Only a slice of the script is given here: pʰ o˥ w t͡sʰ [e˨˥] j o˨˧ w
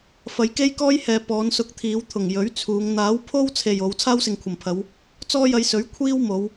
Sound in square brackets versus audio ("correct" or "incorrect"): incorrect